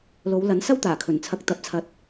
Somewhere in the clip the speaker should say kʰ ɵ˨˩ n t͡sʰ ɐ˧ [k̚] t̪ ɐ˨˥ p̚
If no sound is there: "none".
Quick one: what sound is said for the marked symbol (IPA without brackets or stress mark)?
k̚